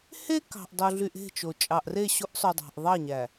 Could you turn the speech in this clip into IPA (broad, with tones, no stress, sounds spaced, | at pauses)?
h e˦ k ɑ̤˨ ʔ dˤ o˨ ɮ y˨ ʔ e̤˦˨ t͡ʃ o˨ t͡ʃʼ ɑ˨ ʔ r e˦˨ ɕ o˦ ʔ sˤ y˨ dˤ ɑ̤˨ ʔ ðˤ ɑ˦˨ ɲ æ˨